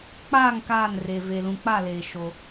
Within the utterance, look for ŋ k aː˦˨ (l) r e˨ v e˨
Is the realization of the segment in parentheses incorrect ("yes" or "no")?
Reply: yes